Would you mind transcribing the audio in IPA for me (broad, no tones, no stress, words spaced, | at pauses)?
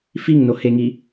fiŋnoheŋi